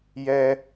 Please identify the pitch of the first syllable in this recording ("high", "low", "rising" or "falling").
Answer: high